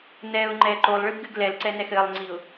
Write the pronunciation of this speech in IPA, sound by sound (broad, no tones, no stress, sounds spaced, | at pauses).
n ɛ ʊ̯ ŋ͡ǃ ɛ ǃ o lˠ ɭ ɨ b ɡ ɨ ɡ l ɛ l ǀ ɛ n ɛ x ɘ lˠ ŋ͡ǀ i ʊ̯